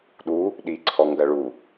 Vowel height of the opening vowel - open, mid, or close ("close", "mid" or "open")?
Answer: close